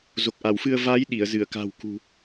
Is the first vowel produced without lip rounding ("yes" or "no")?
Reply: no